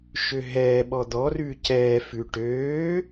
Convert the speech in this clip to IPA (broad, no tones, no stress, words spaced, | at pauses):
ʃøɦɛːɓɔ d̪ɔrʉː cɛːfʉ ʈøː